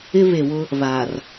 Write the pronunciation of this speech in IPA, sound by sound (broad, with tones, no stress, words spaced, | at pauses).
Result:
ɪ˦βe˨wʊ˦ | βa˨r